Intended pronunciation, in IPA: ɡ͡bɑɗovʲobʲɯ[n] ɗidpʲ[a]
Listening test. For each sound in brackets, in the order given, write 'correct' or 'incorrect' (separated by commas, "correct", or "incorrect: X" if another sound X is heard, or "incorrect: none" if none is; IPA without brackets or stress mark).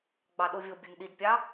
correct, incorrect: ɑ